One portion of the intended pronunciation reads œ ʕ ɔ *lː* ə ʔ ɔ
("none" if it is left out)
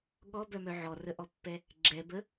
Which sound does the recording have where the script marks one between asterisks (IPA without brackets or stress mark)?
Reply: r